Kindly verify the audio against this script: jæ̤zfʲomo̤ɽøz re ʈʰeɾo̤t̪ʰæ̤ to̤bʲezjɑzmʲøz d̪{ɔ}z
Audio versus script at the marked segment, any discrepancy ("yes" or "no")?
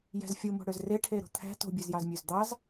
yes